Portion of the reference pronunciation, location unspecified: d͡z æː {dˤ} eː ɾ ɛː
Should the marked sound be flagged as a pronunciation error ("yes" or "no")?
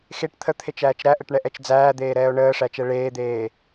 yes